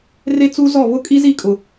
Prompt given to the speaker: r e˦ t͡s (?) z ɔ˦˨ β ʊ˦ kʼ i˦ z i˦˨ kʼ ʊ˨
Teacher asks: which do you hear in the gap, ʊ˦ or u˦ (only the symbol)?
u˦